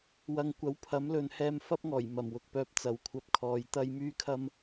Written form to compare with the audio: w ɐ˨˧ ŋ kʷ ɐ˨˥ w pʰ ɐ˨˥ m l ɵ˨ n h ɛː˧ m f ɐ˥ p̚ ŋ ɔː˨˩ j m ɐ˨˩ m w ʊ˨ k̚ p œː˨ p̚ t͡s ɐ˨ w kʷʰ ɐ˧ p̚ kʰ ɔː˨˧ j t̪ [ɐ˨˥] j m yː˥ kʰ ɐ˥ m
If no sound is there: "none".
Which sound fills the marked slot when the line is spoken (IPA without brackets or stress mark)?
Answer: ɐ˥